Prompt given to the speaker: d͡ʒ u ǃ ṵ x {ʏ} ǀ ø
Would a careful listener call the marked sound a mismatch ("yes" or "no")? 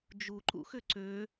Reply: no